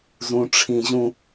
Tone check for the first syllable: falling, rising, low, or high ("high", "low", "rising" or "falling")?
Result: high